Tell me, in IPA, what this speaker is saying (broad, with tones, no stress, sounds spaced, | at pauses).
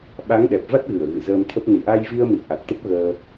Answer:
ɓ a˨˦ ŋ ɗ ɛ˨˩ p̚ v a˦˥ t̚ ɣ ɨ˧˩ ə̯ ɣ ɨ̰˧˨ z əː˧ m t̪ʰ ə˦˥ p̚ n i˧˩ ʔ a˧ j v i˧ ə̯ m ḭ˧˨ ə̯ ʔ a˨˩ k̚ t̪ ə˦˥ p̚ ɣ əː˧